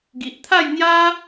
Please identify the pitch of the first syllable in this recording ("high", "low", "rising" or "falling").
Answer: low